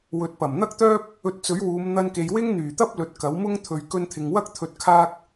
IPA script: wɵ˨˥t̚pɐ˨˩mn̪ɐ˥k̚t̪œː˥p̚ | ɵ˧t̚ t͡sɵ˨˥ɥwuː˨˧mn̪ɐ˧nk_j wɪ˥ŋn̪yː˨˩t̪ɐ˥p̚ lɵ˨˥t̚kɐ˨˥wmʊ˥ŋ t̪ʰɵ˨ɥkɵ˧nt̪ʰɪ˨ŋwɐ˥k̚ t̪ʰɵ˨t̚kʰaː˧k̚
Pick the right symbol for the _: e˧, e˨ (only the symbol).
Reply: e˨